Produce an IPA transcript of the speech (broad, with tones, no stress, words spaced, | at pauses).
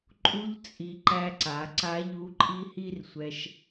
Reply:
ǃʼu˧˥ʎt͡sʼi˩˧ ǃæ˧ǀa˩˧ǀa˧˥ʎu˧˥ ǃʼi˥hi˥r sʷɛ˧ʃ